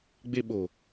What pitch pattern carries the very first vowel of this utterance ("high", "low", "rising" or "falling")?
high